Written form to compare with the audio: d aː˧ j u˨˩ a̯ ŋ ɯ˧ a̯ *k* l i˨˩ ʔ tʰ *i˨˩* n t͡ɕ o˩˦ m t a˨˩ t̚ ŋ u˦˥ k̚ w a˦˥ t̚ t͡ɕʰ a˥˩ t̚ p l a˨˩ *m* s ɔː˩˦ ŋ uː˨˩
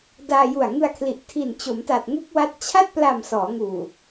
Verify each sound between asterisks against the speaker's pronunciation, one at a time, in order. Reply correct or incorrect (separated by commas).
incorrect, correct, correct